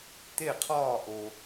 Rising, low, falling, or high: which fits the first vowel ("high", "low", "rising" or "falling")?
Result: falling